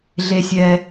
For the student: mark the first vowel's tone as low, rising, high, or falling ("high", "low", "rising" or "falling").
low